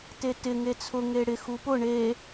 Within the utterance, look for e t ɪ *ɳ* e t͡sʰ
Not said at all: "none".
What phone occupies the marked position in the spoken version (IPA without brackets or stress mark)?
ŋ